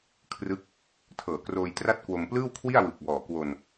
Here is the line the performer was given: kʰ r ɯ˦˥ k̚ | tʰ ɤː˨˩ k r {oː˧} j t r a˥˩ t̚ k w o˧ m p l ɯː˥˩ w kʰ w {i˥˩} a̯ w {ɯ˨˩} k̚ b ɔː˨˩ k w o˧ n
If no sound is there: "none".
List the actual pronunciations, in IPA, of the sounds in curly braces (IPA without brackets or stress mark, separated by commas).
oː˧, i˥˩, ɯ˨˩